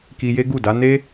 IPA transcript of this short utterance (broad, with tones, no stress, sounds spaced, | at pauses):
k i˧ j e˦ ɡ u˦˨ d a˨˦ n e˦